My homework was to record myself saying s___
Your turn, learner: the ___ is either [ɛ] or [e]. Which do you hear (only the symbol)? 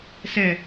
ɛ